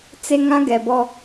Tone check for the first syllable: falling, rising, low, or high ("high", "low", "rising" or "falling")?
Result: high